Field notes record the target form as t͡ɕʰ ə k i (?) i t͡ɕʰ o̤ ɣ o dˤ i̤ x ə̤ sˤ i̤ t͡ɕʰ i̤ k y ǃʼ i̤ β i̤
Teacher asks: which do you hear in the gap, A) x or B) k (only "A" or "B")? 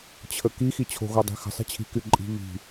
A